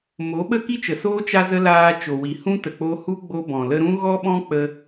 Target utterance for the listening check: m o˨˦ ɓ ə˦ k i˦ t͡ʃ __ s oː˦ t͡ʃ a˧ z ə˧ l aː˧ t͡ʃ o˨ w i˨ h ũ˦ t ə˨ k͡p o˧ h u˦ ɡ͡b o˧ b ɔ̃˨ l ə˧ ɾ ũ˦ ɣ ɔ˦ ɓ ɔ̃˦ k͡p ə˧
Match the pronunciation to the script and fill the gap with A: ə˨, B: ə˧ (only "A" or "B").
A